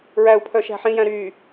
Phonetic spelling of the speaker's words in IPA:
ɹæu̯pʰœ ʃæ̤ħĩjæ̃ ɾy

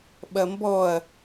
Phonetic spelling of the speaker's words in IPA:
ɓɐmbɔɐ̯

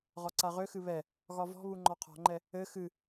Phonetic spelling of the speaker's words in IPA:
ʁɒǀaʁøxɨ βɛ | ɣɒvɔ̤βu ŋ͡ǃɒqʰɔ̤ŋ͡ǃɛ | ɘ xɨ

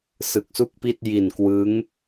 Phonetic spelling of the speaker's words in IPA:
sɯ˨˩k̚su˥˩k̚pi˥˩t̚ ji˨˩nkwɯ˦˥ŋ

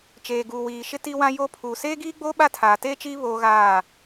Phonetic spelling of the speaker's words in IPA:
t͡ʃeː˨ɡuː˨ wiː˨ʃɪ˦ ti˦wã˦jo˦ pʰuː˨seː˦ɡiː˦ɡ͡boː˦ ɓa˦tʰaː˨teː˦t͡ʃiː˦ βoː˦ɣaː˦˨

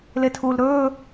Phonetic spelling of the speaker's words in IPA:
letʰuːlɾɵː

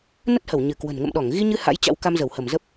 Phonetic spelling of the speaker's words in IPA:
nə˦˥t̚hə˧˩wɲɨ˧˩kwə̤˨˩n ŋə̰˧˨mɗɔ˧˩ŋɣi˧ɲɨ˧ ha̰˧˥jt͡ɕa̰˧˥wka˧m zə˧˩whə˧˩mzə˦˥p̚

